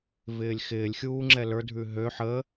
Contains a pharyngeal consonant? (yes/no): yes